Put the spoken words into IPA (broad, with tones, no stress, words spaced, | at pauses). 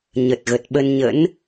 ɲə˨˩t̚ɣə˨˩t̚ɓə˧nɲə̰˧˥n